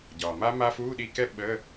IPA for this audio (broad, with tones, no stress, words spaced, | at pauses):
ɟɒː˩ma˦˥ma˦˥ fuː˧˥˧ɗi˧kɛ˦˥ ɓə˧˥˧